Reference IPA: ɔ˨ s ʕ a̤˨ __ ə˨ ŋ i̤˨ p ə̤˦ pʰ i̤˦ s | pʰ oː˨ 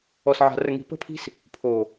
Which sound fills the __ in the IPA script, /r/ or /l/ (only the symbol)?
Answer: r